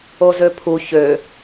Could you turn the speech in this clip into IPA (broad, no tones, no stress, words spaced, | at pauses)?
ozøpʰu çø